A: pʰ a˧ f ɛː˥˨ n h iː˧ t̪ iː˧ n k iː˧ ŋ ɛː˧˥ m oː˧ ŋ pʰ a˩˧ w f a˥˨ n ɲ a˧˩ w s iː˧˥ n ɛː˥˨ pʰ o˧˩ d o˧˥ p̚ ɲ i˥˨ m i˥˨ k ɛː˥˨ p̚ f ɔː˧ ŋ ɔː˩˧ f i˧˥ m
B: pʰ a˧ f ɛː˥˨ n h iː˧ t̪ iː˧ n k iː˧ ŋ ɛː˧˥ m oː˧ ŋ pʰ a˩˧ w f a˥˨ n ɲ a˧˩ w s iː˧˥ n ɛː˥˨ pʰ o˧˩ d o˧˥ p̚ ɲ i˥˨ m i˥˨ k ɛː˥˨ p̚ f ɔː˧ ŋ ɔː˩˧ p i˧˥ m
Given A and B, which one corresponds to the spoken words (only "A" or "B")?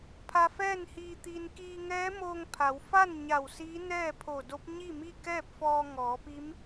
B